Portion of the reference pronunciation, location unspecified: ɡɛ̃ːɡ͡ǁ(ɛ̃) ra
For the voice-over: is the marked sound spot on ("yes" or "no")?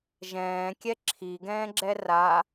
no